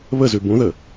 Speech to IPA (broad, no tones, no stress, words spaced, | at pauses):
βəzʉ bũðə